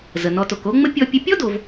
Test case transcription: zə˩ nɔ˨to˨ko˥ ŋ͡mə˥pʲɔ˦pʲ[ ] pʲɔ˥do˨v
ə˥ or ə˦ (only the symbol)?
ə˦